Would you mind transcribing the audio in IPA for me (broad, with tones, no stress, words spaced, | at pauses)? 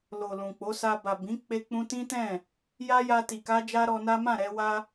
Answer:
lo˨ lũ˨k͡po˨˦sa˧ ba˨bĩ˨˦ k͡pe˧k͡pũ˧ tĩ˦tɛ̃˦˨ | ja˦ja˧ti˨ka˧ d͡ʒa˦ɾɔ˧na˦ mã˦˨ɾɛ˧wa˧